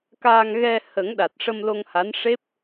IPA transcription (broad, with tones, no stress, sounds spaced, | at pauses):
k aː˧ ŋ ɣ ɛ˧ h ə˨˩˦ ŋ ɗ a˨˩ t̚ ʂ ə˧ m l o˧ ŋ h a˧˥ n ʂ e˦˥ p̚